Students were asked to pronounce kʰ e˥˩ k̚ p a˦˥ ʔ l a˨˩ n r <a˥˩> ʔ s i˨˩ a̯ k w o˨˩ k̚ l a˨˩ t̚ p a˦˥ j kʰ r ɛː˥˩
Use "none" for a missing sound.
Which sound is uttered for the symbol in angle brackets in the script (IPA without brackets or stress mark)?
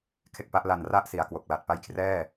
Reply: a˥˩